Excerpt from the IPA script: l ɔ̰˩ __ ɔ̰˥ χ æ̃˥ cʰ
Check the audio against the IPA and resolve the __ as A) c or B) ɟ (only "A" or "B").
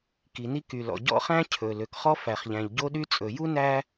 B